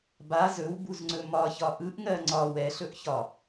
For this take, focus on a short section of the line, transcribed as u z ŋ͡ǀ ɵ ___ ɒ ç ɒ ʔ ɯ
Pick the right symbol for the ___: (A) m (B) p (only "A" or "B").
A